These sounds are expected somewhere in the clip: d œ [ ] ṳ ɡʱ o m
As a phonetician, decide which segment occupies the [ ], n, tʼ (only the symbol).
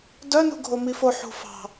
n